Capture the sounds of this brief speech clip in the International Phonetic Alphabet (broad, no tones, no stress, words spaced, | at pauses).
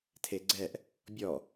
tʰeɡ͡ǀɛʔ | bʲɔ